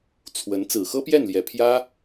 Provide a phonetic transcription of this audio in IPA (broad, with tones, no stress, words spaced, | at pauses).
t͡sʰwə˧˥n t͡sɹ̩˨˩xɤ˥pjɛ˥˩nljɛ˨˩ pʰjä˥